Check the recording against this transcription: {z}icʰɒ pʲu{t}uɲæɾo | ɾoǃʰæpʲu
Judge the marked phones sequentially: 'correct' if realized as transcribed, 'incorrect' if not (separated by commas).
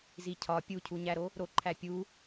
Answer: correct, incorrect